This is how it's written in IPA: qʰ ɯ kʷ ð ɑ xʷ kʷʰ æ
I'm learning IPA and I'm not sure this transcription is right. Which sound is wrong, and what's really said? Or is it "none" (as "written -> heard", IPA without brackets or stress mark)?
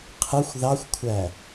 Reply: kʷ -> xʷ